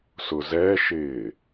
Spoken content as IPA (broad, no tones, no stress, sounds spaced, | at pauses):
s ʊ z ɛ ʃ ɪː